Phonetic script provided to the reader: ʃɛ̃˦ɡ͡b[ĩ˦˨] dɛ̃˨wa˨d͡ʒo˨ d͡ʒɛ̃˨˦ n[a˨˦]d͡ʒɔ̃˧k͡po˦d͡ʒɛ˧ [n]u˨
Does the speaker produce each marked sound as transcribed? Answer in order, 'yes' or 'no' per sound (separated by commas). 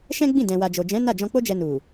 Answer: yes, no, yes